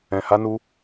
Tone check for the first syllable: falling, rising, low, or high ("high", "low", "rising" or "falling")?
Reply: low